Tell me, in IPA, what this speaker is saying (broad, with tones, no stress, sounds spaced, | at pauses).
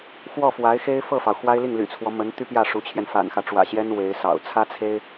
x w ɔ˥˩ f w a˧˥ ɪ̯ x e˥ ɪ̯ f ɤ˥˩ f ɑ˩ ʊ̯ x w a˥ ɪ̯ l i˥˩ ŋ l y̰˨˩ t͡sʰ w ɔ˦ m ə˧˥ n t̪ y˥ p j ä˥˩ ʂ u˧˥ t͡ɕʰ j ɛ˧ n f a̰˨˩ n x ä˦ ʈ͡ʂ w ä̰˨˩ ɕ j ɛ˥ n w e˧˥ ɪ̯ s ɑ̰˨˩ ʊ̯ t͡sʰ ä˥ t͡sʰ e˥ ɪ̯